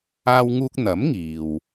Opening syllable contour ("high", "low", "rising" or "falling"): high